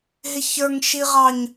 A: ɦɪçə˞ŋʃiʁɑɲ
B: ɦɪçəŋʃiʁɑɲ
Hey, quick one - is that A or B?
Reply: A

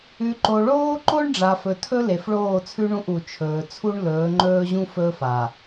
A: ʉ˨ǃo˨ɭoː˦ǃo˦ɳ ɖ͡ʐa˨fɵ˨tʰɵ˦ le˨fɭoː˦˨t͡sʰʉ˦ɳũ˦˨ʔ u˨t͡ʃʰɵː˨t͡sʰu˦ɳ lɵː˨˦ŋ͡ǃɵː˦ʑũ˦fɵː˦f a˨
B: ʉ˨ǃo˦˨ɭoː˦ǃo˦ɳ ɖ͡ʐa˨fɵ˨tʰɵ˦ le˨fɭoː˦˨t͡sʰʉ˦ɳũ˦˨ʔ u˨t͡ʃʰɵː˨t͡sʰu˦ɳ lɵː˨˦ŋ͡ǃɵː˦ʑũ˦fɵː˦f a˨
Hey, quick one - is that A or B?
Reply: A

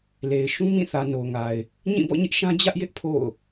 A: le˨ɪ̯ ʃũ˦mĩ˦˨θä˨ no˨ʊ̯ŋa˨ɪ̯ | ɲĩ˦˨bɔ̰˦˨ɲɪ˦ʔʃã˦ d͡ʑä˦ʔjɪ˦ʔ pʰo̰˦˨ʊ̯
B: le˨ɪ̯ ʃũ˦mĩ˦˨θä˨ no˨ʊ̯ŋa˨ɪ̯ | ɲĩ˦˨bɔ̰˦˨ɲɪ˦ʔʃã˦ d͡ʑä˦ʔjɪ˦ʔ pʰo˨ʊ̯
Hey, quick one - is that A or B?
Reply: A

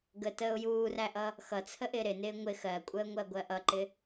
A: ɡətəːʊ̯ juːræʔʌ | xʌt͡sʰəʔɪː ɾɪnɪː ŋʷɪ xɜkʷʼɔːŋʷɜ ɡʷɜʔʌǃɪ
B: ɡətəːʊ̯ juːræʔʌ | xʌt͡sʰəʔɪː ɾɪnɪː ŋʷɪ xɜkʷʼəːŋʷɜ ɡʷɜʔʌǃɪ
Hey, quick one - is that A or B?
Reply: B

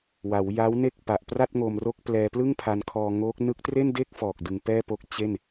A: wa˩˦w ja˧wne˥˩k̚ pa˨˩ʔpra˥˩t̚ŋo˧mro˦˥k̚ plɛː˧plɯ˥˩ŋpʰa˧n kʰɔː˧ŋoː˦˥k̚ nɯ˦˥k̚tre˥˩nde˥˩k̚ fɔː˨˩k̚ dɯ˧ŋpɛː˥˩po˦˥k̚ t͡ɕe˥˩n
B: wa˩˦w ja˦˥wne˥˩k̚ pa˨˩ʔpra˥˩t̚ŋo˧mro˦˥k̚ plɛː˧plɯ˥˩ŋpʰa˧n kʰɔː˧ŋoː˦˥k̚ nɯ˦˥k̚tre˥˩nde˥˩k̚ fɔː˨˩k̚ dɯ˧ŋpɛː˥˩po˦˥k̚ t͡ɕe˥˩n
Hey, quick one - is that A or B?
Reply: B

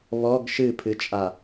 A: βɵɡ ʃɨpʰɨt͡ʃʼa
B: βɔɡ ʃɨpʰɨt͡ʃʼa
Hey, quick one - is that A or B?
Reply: B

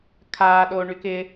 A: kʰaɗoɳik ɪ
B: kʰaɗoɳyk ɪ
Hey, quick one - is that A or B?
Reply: B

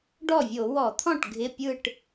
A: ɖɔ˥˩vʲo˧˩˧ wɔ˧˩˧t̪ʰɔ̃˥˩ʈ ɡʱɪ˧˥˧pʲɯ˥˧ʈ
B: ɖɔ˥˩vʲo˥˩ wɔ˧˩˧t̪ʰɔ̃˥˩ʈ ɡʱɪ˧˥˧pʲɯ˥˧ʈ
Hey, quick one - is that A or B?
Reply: A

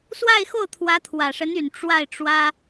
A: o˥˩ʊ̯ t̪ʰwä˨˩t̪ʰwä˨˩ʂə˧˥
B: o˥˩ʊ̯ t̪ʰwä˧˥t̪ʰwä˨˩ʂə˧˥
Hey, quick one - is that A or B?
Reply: B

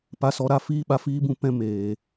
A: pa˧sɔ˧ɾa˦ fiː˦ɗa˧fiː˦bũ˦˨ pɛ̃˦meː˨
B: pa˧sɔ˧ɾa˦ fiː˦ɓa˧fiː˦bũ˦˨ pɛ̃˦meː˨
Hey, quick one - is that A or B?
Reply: B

